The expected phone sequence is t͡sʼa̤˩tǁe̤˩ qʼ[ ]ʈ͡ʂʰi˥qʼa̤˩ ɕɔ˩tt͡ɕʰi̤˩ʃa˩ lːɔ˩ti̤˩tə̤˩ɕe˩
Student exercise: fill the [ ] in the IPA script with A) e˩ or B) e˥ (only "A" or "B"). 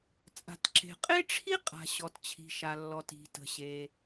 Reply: B